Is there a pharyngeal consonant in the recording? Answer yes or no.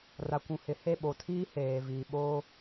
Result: no